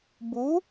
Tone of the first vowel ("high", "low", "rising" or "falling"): rising